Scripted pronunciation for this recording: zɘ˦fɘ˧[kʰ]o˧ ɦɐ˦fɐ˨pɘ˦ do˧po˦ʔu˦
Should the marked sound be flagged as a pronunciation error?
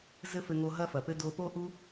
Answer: yes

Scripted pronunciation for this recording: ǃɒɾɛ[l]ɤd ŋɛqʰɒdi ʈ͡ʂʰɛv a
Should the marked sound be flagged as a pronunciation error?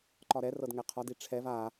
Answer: yes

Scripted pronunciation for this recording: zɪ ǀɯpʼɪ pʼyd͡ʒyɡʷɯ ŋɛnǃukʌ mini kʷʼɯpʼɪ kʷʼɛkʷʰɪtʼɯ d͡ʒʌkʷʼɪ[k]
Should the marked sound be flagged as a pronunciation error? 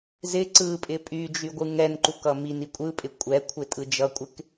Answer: no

